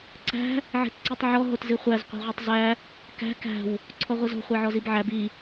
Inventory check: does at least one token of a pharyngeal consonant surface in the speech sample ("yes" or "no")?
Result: yes